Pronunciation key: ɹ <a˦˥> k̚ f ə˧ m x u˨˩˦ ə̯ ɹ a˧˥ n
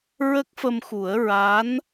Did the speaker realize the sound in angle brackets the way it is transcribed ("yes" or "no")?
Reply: no